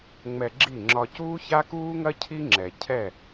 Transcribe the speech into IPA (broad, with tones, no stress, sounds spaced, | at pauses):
ŋ͡m ɛ˧ ɡ͡ǁ i˦˨ ŋ͡ǁ ɒ˧ c uː˦ ç a˦ k uː˦ ŋ ɐ˦ cʰ i˦ ŋ͡ǁ ɛ˨ cʰ ɛ˦˨